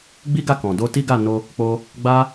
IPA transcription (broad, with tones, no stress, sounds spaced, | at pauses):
ɡ͡b i˦ ɡ a˦˨ k ɔ̃˨ d o˧ t i˦ ɡ a˦˨ n o˧ | k͡p o˧ | ɡ͡b a˦